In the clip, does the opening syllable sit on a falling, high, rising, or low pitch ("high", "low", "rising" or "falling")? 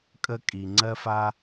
high